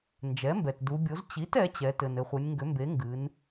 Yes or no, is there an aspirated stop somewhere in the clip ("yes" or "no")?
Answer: no